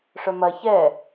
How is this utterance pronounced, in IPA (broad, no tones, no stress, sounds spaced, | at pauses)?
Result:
ʂ œ m ɐ ç ɛ